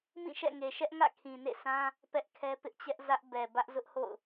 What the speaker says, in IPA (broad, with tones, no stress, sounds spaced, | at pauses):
m ĩ˦˨ ʃ ɛ̰˦˨ ŋ e˨ ʃ ɛ˦ ʔ ŋ ä̰˦˨ kʰ ĩ˨ n ḛ˦˨ sʰ ã˦ | p ɛ˦ ʔ kʰ ɛ˦ p ɪ˦ ʔ t͡ɕ ɛ˦ ʔ z ä˦ ʔ b ɛ˨ b ä˦ ʔ z ʊ˦ ʔ h o̰˦˨ ʊ̯